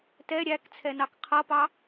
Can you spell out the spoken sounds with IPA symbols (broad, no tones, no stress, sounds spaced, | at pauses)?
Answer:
t ɛ ɾʲ æ k t͡sʰ ɛ n ɑ k qʰ ʌ p ɑ